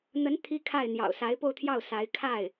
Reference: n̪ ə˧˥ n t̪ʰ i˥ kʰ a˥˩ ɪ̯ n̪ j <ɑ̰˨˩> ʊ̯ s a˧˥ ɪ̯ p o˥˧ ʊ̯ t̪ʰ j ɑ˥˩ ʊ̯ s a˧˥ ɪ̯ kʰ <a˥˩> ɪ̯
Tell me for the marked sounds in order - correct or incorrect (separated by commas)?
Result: correct, correct